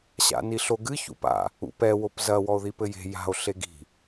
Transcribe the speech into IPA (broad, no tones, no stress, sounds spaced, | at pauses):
ɕ a̰ n i ɬ o ɡ ɨ ç ṵ p a̰ | ṵ p ɛ w o p z ɐ w ɔ o̯ ð i p ɘ j e̤ j a̤ o̯ ɬ e ɡ i̤